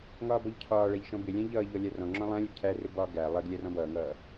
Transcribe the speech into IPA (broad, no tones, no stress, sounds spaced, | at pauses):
ŋ ɒː b ɔ ʎ cʰ ɒː ɭ æ ʎ ʃ ɔ̃ b ɪ lʲ æ̃ ʎ ʌː ʎ ɔ lʲ æ r ɔ̃ ŋ͡ǁ ɔ̃ lˠ æ̃ lʲ ʊ ɡ cʰ æ r ɪ b ɒ ɡ æ lˠ ɜ ɡ lʲ æ r ɔ̃ b ʌː ŋ ʌː